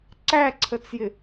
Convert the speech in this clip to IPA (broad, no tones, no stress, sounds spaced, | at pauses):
ǀ æ ǀʰ ə t͡s j ɪ